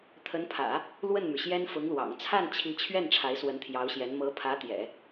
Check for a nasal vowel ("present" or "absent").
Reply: absent